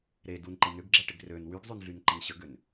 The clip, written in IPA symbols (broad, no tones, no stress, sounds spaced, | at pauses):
ɾ e d u n ǃ ɪ n ʏ ɡ ɡ͡ǁ ɛ ʈ ɪ ɡ r ø n w y ɡ zˤ y n ɮ y n ǃ ə n ɕ ə ɡ ʏ n